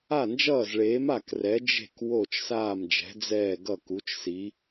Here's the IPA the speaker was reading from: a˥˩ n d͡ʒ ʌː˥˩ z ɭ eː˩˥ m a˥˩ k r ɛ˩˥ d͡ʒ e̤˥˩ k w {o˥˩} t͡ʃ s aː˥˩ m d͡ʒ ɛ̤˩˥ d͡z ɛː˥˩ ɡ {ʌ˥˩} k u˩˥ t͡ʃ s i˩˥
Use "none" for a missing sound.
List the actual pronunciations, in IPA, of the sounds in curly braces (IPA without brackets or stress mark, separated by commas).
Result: o˥˩, ʌ˥˩